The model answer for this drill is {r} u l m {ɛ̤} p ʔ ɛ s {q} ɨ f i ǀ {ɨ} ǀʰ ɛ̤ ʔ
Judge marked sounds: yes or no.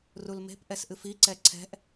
yes, no, no, no

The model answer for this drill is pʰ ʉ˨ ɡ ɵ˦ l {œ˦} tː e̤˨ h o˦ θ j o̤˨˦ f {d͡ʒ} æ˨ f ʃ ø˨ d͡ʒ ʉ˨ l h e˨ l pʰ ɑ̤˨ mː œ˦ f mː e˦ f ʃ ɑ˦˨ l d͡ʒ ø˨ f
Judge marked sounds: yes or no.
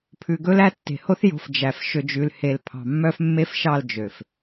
no, yes

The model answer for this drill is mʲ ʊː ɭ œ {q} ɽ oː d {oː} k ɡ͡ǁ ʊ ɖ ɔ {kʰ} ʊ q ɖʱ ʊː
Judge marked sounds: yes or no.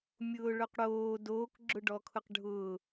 yes, yes, yes

